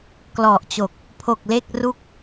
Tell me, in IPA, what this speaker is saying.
k l ɔ˨˩ ʔ t͡ɕ o˨˩ k̚ | pʰ o˨˩ k̚ l e˥˩ k̚ r u˥˩ k̚

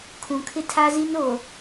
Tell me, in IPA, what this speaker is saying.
kʰ ũ˨ kʰ ɪ˦ tʰ a˦ z i˦ n o˨

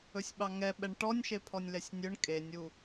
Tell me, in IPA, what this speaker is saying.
ɵ sʲ ɓ ɑ ŋ ɛ ɓ ɛ ɳ ʈ ɔ nʲ ʃ e pʰ ɔ nʲ l ɛ sʲ nʲ ɵ ɳ kʼ e nʲ u

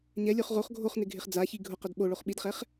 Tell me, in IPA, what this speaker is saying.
ɲ ɛ lʲ o χ ʁ o χ ɡʱ o χ n ɪ ɡʱ ɪ χ d͡z a ç i ɡʱ ʊ q ʊ d ɓ o ɭ o χ ɓ i d χ ɛ χ

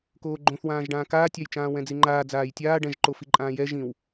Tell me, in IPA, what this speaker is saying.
k oː ɡ͡ǃ õ θ w ãː ʒ ɖ ãː k aː tʲ a j t͡ʃ ãː w ɛ̃ d͡z i ŋ͡ǃ aː d͡z aː j tʲ aː ɖ ɛ̃ ʒ ǃ o f i ǃʼ ãː j ɛ ʒ ĩ w

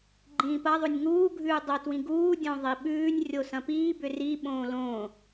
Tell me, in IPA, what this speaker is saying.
ɡ͡ǃ ĩː p ɐ ðˤ o nʲ ŋ uː ɡʱ ʉː dˤ o t w ĩ ɡ uː dʲ õ ðˤ i ɓ ʉː nʲ rʲ o s ɐ̃ p iː b ʏ r i ɓ õː l õː

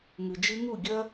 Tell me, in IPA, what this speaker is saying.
ŋ ɨ˨ d͡ʒ ɨ˦ ŋ u˦˨ ɡʲ ɐ˦

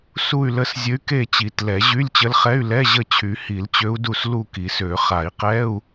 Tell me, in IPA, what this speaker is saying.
s u˦˨ y̯ l ə˦˨ s zʲ ə˧˥ y̯ k e˦˨ t͡ɕ i˨˩˦ t l ɛ˨˩˦ ʑ y˧˥˧ lʲ t͡ɕ ə˧˥ l χ ɛ˧˥˧ y̯ l ɛ˧˥˧ ʑ ə˦˨ t͡ɕʰ y˨˩˦ h i˨˩˦ l t͡ɕ ø˧˥ u̯ d u˦˨ s l u˦˨ k i˨˩˦ s ø˨˩˦ χ a˨˩˦ i̯ q ɛ˧˥˧ u̯

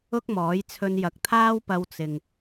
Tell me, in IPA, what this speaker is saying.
ʊ˥ k̚ m ɔː˨˥ j t͡sʰ ɵ˧ n j ɐ˨˥ k̚ t̪ʰ aː˥ w p ɐ˧ w t͡s ɪ˨ ŋ

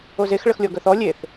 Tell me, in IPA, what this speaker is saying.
o z e x ɭ ə x lʲ ɔ ɡ œ θ ɔ lʲ e θ

